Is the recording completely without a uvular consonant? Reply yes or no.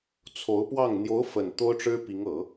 yes